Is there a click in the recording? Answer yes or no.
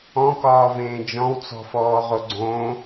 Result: yes